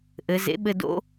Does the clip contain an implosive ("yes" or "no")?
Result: yes